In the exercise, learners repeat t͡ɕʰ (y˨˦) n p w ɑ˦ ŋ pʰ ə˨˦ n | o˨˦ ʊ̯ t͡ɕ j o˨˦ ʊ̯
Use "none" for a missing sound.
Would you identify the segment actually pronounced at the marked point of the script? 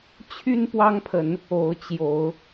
y˦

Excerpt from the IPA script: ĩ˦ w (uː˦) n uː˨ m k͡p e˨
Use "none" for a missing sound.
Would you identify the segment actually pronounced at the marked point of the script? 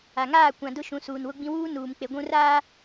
uː˦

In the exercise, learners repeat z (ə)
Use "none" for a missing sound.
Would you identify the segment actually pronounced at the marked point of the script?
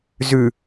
ʉ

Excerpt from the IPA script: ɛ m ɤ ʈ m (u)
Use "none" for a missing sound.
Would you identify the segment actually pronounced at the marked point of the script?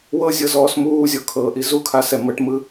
ɯ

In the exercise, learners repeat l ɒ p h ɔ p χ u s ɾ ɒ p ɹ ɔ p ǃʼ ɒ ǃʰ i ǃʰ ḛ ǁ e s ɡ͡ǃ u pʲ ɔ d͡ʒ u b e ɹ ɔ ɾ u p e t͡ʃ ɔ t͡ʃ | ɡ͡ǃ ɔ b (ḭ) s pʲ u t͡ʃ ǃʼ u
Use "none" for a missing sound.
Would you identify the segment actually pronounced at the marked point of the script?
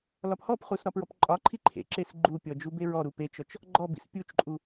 ḭ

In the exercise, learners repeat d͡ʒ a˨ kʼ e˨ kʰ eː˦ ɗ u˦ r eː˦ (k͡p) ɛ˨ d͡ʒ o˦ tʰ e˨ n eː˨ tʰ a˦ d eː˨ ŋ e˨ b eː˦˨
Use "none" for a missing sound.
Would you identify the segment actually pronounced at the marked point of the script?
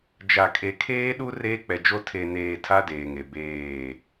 k͡p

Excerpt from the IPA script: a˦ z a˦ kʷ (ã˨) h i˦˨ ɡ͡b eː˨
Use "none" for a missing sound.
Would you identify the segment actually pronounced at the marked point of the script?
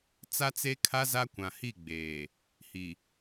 ã˨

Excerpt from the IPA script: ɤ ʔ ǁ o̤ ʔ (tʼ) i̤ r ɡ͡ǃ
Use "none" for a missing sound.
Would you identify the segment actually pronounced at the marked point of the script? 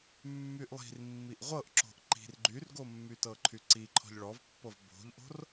ǃ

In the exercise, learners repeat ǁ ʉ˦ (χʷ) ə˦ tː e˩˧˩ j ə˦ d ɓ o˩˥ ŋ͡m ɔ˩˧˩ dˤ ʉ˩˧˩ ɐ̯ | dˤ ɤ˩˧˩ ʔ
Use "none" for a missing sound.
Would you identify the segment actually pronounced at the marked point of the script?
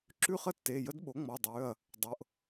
χ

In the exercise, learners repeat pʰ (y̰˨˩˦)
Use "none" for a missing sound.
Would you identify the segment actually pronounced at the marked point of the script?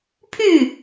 y˥˩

